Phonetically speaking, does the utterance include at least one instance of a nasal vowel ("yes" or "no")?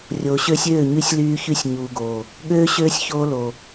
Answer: no